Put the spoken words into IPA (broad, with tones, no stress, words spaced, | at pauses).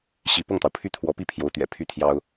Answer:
ɕi˧˥ pɤ˥˩ŋt̪ɑ˩ʊ̯pʰy˥˩ t̪ʰwɔ˧˥pi˥˩pʰjo˧˥ʊ̯ t̪ɥɛ̰˨˩ pʰy˥t̪ʰjɑ˥ʊ̯